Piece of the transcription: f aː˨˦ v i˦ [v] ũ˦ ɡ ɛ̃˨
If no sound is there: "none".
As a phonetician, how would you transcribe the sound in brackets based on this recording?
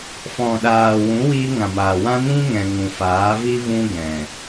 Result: v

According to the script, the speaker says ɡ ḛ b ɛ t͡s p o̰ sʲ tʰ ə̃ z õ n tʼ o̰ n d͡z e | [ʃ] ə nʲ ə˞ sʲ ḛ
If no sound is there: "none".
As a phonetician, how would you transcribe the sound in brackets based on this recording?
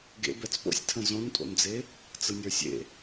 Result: t͡s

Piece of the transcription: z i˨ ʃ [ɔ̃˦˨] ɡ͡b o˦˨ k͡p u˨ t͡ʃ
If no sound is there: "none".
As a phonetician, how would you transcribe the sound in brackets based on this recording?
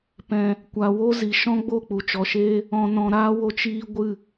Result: ɔ̃˦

